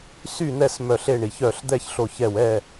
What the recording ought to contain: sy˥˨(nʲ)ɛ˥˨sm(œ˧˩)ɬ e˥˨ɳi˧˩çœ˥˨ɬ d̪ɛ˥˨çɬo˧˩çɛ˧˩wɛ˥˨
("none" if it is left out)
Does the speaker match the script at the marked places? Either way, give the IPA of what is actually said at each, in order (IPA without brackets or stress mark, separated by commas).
n̪, œ˧˩